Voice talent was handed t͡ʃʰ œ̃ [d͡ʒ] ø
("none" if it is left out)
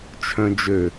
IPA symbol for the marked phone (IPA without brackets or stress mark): d͡ʒ